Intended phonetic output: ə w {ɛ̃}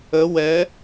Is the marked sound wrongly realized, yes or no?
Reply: yes